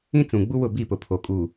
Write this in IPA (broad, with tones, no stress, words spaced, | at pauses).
ĩ˦ t͡sũ˨ɡ͡bu˦wʊ˦˨ bi˦˨pʊ˨pʰo˨ kʼuː˨